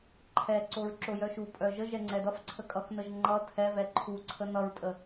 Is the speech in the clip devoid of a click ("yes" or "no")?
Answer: no